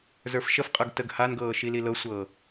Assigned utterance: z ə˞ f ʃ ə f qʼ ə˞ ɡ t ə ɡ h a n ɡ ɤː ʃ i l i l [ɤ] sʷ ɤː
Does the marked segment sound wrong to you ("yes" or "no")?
no